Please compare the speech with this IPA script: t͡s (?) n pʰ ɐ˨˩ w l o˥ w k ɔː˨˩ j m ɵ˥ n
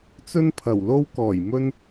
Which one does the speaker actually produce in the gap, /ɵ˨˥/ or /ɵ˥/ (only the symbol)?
ɵ˥